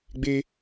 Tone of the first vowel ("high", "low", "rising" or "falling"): high